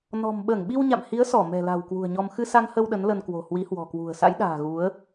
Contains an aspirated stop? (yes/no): no